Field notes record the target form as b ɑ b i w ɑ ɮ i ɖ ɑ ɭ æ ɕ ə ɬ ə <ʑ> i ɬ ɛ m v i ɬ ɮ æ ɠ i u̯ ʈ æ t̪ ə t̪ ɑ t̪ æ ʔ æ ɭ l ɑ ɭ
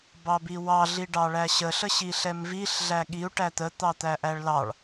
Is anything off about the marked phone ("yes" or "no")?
yes